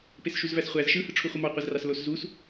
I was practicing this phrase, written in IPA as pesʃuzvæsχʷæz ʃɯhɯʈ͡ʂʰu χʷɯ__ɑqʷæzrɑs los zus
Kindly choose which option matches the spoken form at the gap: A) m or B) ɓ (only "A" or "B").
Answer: A